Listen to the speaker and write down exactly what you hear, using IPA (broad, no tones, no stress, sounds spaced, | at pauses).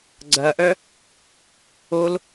ɡ͡ǀ ɐ ʔ œ | o l